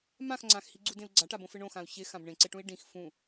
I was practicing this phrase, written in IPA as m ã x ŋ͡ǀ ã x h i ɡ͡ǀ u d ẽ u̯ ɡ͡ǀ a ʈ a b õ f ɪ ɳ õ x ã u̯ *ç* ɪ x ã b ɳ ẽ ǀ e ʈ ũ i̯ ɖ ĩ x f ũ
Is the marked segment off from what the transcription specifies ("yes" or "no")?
no